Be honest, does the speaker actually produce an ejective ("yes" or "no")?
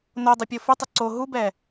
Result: no